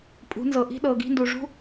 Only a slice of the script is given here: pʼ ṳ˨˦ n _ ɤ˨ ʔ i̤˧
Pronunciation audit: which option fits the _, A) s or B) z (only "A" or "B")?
B